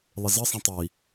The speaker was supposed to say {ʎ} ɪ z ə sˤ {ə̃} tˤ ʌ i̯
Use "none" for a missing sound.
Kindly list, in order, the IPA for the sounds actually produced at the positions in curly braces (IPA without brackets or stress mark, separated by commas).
lˠ, ə̃